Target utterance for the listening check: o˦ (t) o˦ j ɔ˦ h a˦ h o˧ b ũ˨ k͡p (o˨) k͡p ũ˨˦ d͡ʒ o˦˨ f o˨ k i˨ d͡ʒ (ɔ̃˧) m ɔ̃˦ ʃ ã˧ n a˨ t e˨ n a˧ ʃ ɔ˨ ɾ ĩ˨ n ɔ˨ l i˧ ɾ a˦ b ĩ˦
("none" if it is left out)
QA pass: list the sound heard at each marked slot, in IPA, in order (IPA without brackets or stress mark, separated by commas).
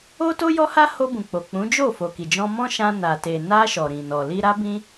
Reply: t, o˨, ɔ̃˧